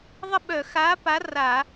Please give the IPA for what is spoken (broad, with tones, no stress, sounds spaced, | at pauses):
ðˤ ə˥˨ ɓ œ˧˩˧ x a˨˥ p a˨˥ r a˧˩˧